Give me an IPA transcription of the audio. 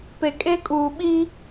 p e˨ kʼ e˦ kʼ uː˨ ɓ i˦

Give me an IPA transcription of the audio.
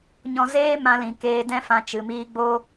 ɲ ɔ̃˧ z eː˦ m ã˧ l ĩ˨ k eː˧ d ɛ̃˦ f ã˧ t͡ʃ ɨ˨ m iː˧ ɡ͡b o˦

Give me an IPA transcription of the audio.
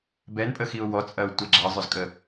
b ɛ n pʼ ə x i ʊ̯ w ɔ t͡sʼ ɐ ʊ̯ tʷ ɛ ɡ͡ǁ ɐ zˤ œ z kʼ ə

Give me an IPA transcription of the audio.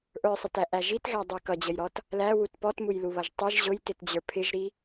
ʔ ə˞ sˤ ə t æ ʔ æ ʒ i t ɣ æ dˤ i k ʌ d͡ʑ ə j ɾ ɔ t | l æ w u t p ɔ t m u j l u β ʌ ʒ tˤ i ʒ ʑ ʊ j t ɪ t d͡ʑ ə˞ pʰ ɪ ʒ ɾ i

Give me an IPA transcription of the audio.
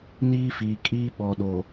n iː˦ f iː˨ kʼ iː˦ ɓ ɔ˨ ɗ o˨

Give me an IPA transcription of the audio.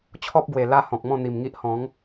t͡ɕʰ ɔ˦ p̚ ɡ w e˨˩ l a˦ h ɔ̃˨ k̚ m ɔ̃˥˧ n̪ i˨˩ m ŋ i˦ ʔ h ɔ̃˨˦ ŋ

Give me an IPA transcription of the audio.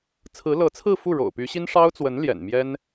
t͡sʰ ɹ̩˧˥ l ɤ˧˥ t͡sʰ ɹ̩˥˧ f u˥˩ ɻ o̰˨˩ ʊ̯ p y˧˥ ɕ i˥ n ʂ ɑ˥ ʊ̯ t͡s w ə˧˥ n l j ɛ̰˨˩ n m j ɛ˥ n

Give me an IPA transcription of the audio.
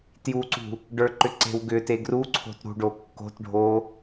t j u ǀ ṳ | ɖ ə˞ ǃ ʏ ǀ e̤ w ɡ ʏ t e ɡ r u ǀʰ o̤ t ɾ ṳ ɖ o kː o̤ t ɖʱ o

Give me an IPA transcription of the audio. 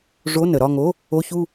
ʐ o˧˥˧ n ə˩˧ ɾ ɒ˥˧ ŋ o˧˥˧ | o˧˥˧ ç u˥˧

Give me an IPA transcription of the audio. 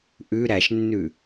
ʔ ʉ ɾ æ ʃ nː ʉ

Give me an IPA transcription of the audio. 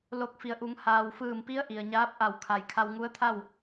l o˧˩ k̚ f i˩ ə̯ ʔ u˩˧ ŋ h aː˩ w f ɯː˧˩ m p i˧˥ ə̯ ʔ i˩ ə̯ ɲ aː˧˥ p̚ ʔ a˧˩ w kʰ a˩ j kʰ a˧ w ŋ u˧˥ ə̯ t̪ʰ a˥˨ w

